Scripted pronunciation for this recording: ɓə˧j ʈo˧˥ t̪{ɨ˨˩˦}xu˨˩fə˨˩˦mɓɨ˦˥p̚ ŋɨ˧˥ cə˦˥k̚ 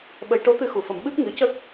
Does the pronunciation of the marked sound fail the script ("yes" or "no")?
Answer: yes